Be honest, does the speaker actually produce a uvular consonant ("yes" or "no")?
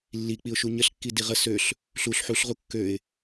yes